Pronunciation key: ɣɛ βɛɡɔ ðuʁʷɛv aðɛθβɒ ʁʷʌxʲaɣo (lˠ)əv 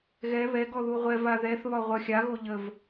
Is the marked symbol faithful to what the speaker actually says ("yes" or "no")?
no